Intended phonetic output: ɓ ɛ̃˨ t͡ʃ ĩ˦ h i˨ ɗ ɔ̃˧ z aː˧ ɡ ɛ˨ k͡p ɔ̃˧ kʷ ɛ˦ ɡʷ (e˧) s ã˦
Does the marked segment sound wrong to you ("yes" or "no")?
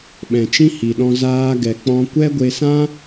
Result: no